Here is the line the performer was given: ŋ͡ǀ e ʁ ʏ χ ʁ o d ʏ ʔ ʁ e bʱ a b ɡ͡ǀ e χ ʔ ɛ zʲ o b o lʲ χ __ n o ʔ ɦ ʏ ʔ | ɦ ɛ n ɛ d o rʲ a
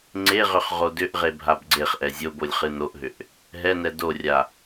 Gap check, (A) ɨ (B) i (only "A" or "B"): A